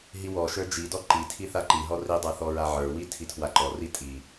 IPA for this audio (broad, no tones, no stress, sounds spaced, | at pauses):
ɦ i w ɔ ʃ ə˞ d͡ʒ i d ɔ ǃ i tʰ i θ a ǃ i ɦ ɔ r i dˤ a θ ɔ ɹ a ʕ ə˞ w i tʰ i tʰ w a ǃ ɔ r i tʼ i